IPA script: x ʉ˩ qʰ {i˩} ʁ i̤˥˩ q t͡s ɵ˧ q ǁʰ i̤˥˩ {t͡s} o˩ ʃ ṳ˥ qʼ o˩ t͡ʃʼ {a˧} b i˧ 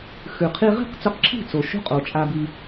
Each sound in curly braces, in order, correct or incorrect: incorrect: i˧, correct, correct

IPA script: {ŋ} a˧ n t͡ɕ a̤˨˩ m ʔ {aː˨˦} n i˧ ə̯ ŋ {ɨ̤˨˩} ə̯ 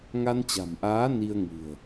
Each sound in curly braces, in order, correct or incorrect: correct, correct, correct

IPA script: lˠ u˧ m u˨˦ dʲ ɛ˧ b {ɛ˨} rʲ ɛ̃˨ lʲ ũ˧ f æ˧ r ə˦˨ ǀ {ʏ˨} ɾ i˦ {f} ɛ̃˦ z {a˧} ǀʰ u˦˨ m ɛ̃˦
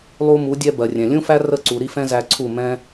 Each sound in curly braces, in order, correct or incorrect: incorrect: ɜ˨, incorrect: u˨, correct, incorrect: æ˧

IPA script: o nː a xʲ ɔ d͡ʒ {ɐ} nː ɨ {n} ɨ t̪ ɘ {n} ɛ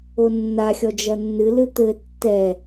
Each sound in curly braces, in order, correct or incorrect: correct, incorrect: l, incorrect: tː

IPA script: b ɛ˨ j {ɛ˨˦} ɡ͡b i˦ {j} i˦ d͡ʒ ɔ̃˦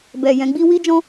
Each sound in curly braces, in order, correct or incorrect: incorrect: ɛ̃˨˦, incorrect: w

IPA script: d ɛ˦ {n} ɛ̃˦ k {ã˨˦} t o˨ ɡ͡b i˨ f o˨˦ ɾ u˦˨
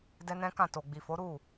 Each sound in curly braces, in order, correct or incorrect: correct, incorrect: ã˦˨

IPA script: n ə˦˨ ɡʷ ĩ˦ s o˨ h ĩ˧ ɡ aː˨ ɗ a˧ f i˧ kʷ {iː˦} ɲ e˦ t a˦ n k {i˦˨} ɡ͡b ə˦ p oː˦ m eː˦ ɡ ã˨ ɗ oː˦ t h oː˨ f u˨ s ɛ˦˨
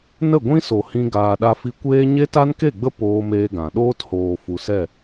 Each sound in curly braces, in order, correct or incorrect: incorrect: eː˦, incorrect: e˦˨

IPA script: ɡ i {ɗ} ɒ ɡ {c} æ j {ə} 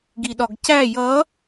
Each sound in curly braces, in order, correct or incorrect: correct, correct, incorrect: ʌ

